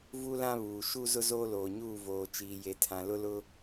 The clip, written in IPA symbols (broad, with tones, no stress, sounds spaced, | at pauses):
v u˦ l ã˦ β uː˨ ʃ u˦ z ʊ˦ z oː˦ l oː˨ ɲ uː˦˨ v oː˨ t͡ʃ iː˨ j e˨ tʰ ã˨ l ʊ˦ l ʊ˦